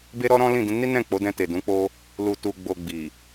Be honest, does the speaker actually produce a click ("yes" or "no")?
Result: no